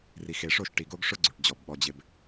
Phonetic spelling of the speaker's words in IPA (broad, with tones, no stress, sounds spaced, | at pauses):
r i˨ x e˨ ʂ o˦˨ ʃ ʈ i˨ ɡ o˦ ɡ ʂ ʊ˦ ɡ͡ǀ u˨ ʈ d͡ʑ ɔ˨ b ɓ ɔ˨ d͡ʑ ɪ˨ b